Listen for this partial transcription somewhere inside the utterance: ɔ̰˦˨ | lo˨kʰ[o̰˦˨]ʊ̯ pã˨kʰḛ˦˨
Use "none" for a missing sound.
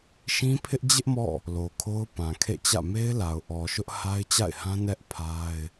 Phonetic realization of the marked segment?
o˦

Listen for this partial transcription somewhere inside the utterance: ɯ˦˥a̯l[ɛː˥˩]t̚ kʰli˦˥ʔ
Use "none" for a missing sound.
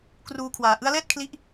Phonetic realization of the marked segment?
ɛː˥˩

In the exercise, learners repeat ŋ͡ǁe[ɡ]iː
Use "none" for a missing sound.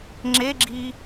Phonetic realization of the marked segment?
ɡ͡ǁ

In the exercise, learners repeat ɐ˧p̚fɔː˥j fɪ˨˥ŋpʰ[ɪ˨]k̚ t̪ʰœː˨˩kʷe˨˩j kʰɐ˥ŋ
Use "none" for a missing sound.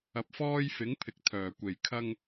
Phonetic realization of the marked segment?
ɪ˨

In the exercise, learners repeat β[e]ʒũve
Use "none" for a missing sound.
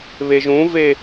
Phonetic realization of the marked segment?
e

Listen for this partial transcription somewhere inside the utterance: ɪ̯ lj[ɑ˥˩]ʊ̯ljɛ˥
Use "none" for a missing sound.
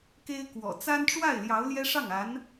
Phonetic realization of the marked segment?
ɑ˧˥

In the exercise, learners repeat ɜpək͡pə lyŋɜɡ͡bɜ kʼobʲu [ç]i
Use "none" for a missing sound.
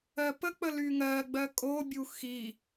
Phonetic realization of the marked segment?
x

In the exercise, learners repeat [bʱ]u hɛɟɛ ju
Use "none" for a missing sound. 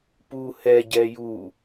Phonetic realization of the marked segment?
p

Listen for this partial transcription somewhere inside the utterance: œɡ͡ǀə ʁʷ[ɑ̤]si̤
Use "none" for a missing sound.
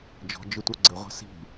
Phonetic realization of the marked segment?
a̤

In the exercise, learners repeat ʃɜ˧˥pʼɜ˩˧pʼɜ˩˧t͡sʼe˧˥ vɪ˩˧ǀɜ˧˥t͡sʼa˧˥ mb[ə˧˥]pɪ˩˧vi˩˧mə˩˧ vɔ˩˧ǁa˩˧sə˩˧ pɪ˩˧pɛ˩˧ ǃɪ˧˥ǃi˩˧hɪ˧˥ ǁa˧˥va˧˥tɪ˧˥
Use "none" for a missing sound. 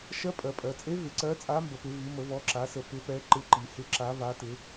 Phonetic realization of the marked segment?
ə˩˧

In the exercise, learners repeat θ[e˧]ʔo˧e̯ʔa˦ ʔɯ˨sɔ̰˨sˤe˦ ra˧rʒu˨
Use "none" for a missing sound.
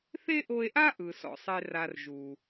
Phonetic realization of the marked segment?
e˦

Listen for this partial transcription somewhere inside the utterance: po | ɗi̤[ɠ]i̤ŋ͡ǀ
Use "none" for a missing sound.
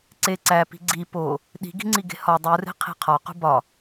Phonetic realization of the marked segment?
ɡ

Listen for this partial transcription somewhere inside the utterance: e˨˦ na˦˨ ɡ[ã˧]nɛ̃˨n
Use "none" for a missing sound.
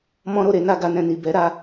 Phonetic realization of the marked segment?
a˧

